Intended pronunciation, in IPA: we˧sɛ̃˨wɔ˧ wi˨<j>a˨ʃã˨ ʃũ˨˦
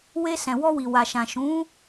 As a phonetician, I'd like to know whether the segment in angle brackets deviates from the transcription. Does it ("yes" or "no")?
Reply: yes